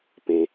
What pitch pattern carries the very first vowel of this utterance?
low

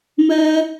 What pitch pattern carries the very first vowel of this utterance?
high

